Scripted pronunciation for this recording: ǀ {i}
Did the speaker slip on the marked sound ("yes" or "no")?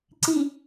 no